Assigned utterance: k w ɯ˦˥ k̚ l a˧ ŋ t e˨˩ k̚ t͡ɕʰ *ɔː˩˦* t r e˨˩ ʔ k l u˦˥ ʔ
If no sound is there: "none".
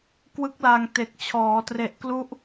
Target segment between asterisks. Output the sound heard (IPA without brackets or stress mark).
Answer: ɔː˩˦